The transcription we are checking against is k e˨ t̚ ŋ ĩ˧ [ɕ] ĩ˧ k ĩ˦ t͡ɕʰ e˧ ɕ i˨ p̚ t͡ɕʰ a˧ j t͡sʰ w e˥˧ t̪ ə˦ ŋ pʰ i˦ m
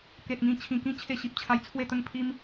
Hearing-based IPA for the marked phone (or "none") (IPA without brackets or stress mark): t͡ɕʰ